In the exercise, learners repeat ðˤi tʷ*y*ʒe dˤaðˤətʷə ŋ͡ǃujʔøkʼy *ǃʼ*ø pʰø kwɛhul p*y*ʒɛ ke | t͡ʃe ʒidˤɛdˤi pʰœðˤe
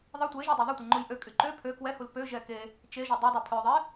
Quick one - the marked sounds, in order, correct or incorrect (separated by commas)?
incorrect, incorrect, incorrect